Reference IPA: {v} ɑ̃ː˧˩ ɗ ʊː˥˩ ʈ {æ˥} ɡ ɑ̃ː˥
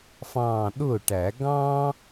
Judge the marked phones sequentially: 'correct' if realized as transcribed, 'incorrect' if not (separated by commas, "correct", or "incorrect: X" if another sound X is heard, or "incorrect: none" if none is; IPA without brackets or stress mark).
incorrect: f, incorrect: æ˨˩˦